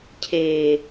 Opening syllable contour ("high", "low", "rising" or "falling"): low